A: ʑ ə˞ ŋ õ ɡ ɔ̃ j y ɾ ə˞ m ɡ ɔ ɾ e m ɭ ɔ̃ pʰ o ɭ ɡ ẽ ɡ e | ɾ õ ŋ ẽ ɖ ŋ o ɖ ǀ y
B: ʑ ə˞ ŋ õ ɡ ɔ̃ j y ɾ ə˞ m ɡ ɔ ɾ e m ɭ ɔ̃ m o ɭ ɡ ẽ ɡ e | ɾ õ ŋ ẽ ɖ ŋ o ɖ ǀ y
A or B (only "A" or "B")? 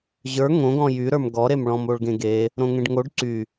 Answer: B